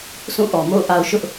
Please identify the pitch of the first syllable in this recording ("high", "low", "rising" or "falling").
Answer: falling